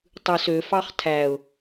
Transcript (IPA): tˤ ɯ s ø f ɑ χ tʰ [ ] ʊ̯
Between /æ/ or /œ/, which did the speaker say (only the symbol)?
æ